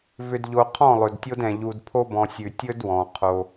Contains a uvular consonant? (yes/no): yes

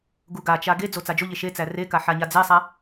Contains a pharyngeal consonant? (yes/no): yes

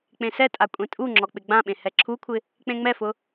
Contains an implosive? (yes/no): yes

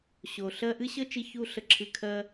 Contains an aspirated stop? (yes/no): yes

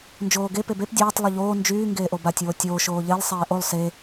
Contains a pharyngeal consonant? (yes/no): no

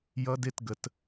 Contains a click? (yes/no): no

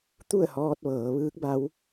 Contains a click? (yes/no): no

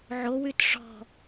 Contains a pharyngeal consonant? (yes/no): yes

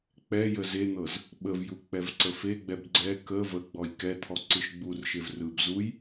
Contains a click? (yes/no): yes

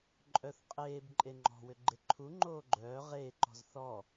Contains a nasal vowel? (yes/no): no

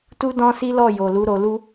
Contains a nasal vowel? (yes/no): yes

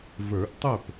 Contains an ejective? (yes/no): no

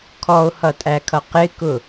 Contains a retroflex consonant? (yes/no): no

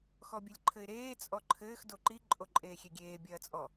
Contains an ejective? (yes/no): yes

